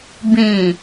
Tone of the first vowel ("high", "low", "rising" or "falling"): low